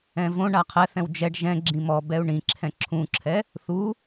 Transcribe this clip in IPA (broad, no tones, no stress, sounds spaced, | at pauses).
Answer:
ɛ̃ v õ ɳ a qʰ ɛ θ ɛ̃ w d͡ʒ ɛ ɖ ʒ ɛ̃ ɡ͡ǁ ĩ m ɔ b ɛ u̯ ɳ ĩ ǁʰ ɛ̃ ǁʰ ũ ǁʰ ɛ | θ u